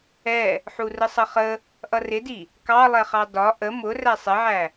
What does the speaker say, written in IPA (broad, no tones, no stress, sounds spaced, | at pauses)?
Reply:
ɛ | ħ u r ə sˤ ʌ χ ə | ʔ ʌ r ɪ d i | k ɑ lˠ ɛ χ ɑ d ɒ ʔ ə m ʊ r æ sˤ ɪ ʕ æ